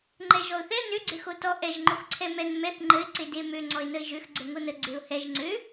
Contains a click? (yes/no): yes